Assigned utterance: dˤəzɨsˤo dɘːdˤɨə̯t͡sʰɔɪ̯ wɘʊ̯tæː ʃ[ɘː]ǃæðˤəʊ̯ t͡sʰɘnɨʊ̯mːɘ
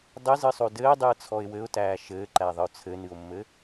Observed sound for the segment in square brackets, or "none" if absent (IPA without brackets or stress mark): ɘː